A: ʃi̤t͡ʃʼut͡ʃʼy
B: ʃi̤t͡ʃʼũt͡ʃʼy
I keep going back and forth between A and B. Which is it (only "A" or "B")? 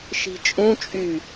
B